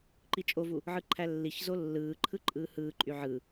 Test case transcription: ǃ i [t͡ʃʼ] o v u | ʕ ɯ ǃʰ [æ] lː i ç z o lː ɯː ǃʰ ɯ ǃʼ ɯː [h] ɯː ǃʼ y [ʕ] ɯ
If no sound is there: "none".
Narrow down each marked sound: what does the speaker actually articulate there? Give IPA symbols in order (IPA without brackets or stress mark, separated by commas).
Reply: t͡ʃʼ, æ, h, ʕ